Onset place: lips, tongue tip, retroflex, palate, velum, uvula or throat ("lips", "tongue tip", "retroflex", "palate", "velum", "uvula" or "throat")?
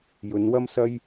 palate